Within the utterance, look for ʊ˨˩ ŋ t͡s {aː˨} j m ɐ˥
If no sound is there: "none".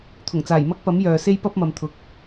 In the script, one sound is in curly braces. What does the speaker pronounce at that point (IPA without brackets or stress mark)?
aː˨˩